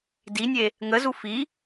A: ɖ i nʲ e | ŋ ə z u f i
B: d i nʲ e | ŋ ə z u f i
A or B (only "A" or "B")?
B